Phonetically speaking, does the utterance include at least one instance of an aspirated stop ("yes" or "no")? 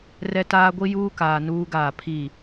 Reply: yes